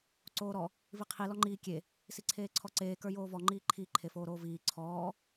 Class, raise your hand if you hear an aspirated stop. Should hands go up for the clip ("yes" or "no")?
yes